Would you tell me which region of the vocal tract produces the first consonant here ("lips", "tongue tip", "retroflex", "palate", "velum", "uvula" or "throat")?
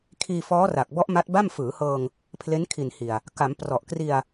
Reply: velum